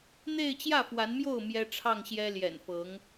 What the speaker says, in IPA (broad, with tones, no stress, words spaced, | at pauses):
n̪e˥˧ɪ̯t͡ɕjä˥˩fwa˧˥nmjo˥˩ʊ̯ mjɛ˥ʈ͡ʂʰɑ˥˩ŋɕjɛ˥ ljɛ̰˨˩nfɤ˧˥ŋ